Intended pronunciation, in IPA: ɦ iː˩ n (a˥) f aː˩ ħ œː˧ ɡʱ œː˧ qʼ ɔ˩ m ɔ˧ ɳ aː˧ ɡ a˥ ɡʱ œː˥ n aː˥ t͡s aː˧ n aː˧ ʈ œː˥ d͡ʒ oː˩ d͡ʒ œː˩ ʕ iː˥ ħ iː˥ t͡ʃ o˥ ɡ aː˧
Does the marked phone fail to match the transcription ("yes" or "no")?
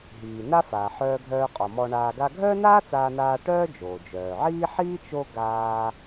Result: no